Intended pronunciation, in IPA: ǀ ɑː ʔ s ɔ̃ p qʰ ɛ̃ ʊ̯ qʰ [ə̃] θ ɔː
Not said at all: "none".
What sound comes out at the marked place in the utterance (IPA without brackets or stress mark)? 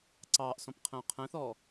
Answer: ɛ̃